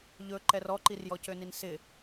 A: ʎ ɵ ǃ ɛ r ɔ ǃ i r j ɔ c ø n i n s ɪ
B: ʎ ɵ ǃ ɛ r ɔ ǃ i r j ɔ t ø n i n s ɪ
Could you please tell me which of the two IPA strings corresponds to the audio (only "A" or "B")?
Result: A